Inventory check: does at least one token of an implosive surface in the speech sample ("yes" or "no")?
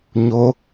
no